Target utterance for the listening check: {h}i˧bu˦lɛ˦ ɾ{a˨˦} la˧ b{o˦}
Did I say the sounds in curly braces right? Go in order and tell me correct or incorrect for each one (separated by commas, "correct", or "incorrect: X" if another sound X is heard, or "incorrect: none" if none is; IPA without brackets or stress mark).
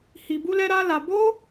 correct, incorrect: a˦, correct